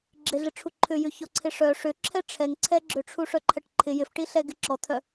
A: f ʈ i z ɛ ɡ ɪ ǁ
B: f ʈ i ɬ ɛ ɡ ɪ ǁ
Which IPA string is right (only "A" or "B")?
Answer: B